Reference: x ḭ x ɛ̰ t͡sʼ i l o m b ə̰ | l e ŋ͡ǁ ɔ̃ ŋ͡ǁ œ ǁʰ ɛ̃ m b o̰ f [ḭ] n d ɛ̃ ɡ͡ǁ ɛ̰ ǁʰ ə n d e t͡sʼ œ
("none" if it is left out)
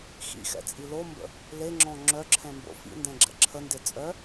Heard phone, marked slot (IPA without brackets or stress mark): ḭ